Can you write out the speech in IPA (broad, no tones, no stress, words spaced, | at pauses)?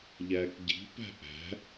ʎæːkɟi̤pæ̤ ʔæ̤